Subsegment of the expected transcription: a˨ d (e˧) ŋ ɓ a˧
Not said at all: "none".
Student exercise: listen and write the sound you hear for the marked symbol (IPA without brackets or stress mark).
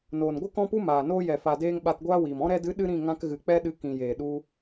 eː˧